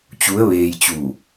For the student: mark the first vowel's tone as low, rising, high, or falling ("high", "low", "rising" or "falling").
rising